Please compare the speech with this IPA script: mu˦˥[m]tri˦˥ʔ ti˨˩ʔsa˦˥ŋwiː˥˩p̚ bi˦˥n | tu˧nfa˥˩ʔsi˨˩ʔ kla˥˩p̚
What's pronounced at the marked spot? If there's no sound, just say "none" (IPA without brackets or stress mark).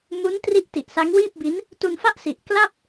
n